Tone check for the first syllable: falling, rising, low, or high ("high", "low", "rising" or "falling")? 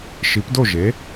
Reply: rising